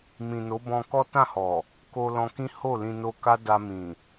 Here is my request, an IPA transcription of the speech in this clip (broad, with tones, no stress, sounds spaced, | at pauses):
m ĩ˨ n o˨˦ b ɔ̃˧ k ɔ˦ t ã˦˨ h ɔ˨ | k o˧ l ɔ̃˧ k ĩ˦ h o˦˨ l ĩ˧ n o˧ k a˦ d a˧ m ĩ˨